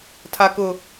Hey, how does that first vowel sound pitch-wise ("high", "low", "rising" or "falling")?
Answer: low